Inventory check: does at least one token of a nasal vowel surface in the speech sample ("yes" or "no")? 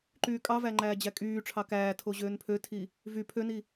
no